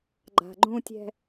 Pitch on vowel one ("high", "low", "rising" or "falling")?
low